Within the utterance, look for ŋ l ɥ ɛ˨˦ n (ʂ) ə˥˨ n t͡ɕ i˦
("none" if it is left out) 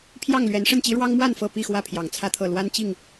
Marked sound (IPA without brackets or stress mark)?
ʂ